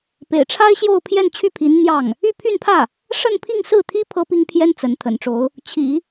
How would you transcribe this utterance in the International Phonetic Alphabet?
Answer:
pḛ˨˩ɪ̯ʈ͡ʂʰa˥ɪ̯ɕjo˥˧ʊ̯ pʰjɛ˥˧nt͡ɕʰy˥˩pʰi˧˥n n̪jɑ˥˩ŋ | y˥˧pʰy˥˧npʰä˥˩ | ʂə˥˧npʰi˥˧ŋsɹ̩˥˩t̪ʰi˥ pʰɤ˥pi˥ŋpʰjɛ˥n t͡sə˧˥n t̪ʰə̰˨˩nʈ͡ʂo˧˥ʊ̯ | t͡ɕʰḭ˨˩˦

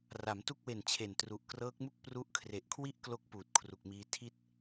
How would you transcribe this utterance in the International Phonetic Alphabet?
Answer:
ra˩˦mtu˦˥k̚we˨˩n t͡ɕʰe˨˩ntru˨˩ʔkrɤː˦˥k̚mu˥˩k̚ pru˦˥ʔkʰre˨˩ʔkʰwi˥˩ʔklo˦˥k̚ puː˨˩t̚kʰru˨˩k̚miː˦˥ tʰi˥˩t̚

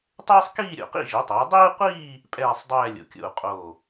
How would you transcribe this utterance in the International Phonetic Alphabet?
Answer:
tˤeː˥sˤkiː˥˧ɾʲo̰˧˩qḭ˥˧ ʒi˩˧tˤo˩˧y̯dˤiː˥qʷiː˥˧ | pʼɛː˥˧sˤdˤɛː˥˧ lʲo̰˩˧kʲo̰˧˩u̯ qʼo˧˩

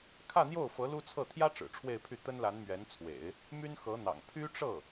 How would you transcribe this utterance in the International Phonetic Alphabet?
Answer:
kʰä˥˧n̪jo˥˩ʊ̯fɤ˧˥ lu˥t͡sʰɤ˥˩ t̪ʰjä˥ ʈ͡ʂɻ̩˨˩ʈ͡ʂʰwe˥˧ɪ̯pʰy˥˩ t̪ə˥nla˧˥nmɥɛ˧˥n t͡sʰwḛ˨˩˦ɪ̯ | my˥nxɤ˧˥n̪ɑ̰˨˩ŋ pʰy˥ʈ͡ʂɤ˥˩

